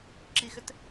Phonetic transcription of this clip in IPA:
ǁ i x ʏ t

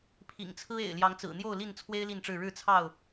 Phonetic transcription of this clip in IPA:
pʰ ḭ˨˩ ŋ t͡sʰ ɹ̩˦ ḛ˨˩ ɪ̯ l j ɑ˨˦ ŋ t͡s ɹ̩˨˩ n̪ j o˥˨ ʊ̯ l i˥˨ n t͡sʰ w e˦ ɪ̯ l i˥˨ n ʈ͡ʂ ɻ̩˥˨ ɻ ɻ̩˥˨ t͡sʰ ɑ˥˨ ʊ̯

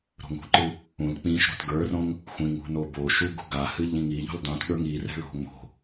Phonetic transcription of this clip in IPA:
ɾ o̤ ŋ ṳ ǃ ɨ | ũ l k͡p ĩ ʃ ɾ o̤ t ɡ ə˞ r õ ŋ | xʷ ĩ ŋ ṳ n o b o ʃ u ɡ ṳ ɡ a h ɨ ʎ ĩ ŋ i ʎ ṳ l dˤ ũ t ɠ ə˞ ŋ i r ɛ̤ ɭ o̤ ŋ͡m o̤

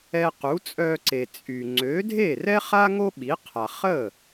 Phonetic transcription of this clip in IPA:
ɛ˧ q u˩˥ t͡sʼ œ˧ ǀ e˩ t͡sʼ y˩ ŋ͡ǀ ø˩˥ dʱ e˥˩ r ɛ˥ χ a˥ ŋ o˥ ɓ i˩˥ qʰ a˩ χ ə˥˩

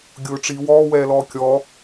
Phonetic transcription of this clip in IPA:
ɡʲ ʊː ʈ͡ʂ i w ɔː w ɛː l ɔː kʲ ɔ

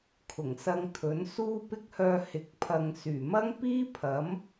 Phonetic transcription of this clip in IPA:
kʰ ʊ˨˩ ŋ s ɐ˧ ŋ t̪ʰ ɵ˨˥ n s uː˥ p ɪ˥ k̚ h œː˧ h ɪ˨ k̚ pʰ ɐ˨ ŋ s yː˨˩ m ɐ˥ ŋ p iː˥ pʰ ɐ˨˥ m

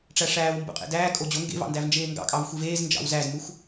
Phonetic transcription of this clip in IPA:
ʈ͡ʂ æ ʂ æː w m b ṵ qʼ ḛ d æː kʼ o d͡ʑ o ŋ ɡ ḛ v ɑ̰ n d æ v n d͡ʒ eː ŋ ɡ ɑ̰ kʼ ɑ v xʷ i v eː z n d͡ʒ ɑ̰ w z æ z m u xʷ

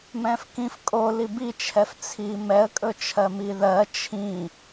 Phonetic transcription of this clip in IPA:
m ɛ̃ f k ĩ f kʼ o l i b i t͡ʃʰ ɛ f t͡sʰ i m ɛ ə̯ kʼ ɵ t͡ʃʰ ɜ m i ð ɜ t͡ʃʰ ĩ

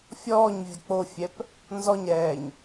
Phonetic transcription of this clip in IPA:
fʲ ɔː ɲ vʲ ə k͡p o fʲ ɛ p | n z ɔ ɲ ɾ ɛː ɲ

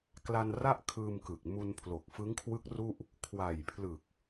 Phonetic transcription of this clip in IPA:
k l a˧ n r a˥˩ ʔ kʰ ɯː˧ m k ɯ˨˩ k̚ m u˧ n pʰ l o˨˩ k̚ f ɯ˦˥ ŋ kʰ w ɯ˦˥ k̚ r u˥˩ ʔ | kʰ w a˨˩ j pʰ l ɯ˨˩ k̚

